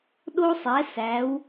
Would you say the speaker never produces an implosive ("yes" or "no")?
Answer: no